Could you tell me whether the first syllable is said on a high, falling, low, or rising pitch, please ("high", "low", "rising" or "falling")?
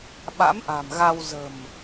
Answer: rising